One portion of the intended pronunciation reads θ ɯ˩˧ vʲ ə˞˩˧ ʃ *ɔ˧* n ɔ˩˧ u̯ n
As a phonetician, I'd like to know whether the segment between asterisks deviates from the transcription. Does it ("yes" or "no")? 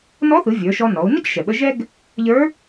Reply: no